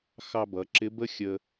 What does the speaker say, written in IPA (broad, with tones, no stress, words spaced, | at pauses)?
xɑ˧bʌ˩˧ ǁɪ˧˥bə˥ xʲə˧